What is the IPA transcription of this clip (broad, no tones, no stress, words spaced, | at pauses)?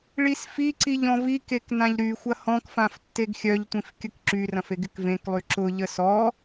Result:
ɭisfiǀiʎ ɔ̃vikek nãʎɾyxʷɐ hɔ̃kfãf tːeɡxʲœʎtʷĩf kʲəkǁyrɐ̃f eɡɪkvẽklˠy ǁʊʎə sɔ